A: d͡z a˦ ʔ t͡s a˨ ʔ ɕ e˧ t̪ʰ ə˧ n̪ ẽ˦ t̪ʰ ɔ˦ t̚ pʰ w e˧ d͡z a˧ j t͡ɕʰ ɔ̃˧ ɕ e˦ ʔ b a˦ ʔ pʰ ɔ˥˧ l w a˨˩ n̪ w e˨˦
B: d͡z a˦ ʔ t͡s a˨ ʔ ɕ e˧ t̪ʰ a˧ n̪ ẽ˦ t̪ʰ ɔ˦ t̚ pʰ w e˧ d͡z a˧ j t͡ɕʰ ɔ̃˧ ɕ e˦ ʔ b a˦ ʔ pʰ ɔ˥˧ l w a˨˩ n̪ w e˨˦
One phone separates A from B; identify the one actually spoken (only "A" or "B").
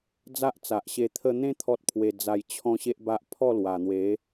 A